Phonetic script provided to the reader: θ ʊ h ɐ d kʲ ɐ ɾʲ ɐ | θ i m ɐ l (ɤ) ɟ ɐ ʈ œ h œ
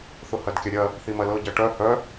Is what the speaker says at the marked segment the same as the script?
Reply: yes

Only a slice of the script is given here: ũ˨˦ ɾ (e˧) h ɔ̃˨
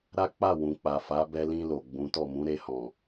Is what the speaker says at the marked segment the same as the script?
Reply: yes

